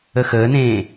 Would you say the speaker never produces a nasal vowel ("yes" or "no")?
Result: no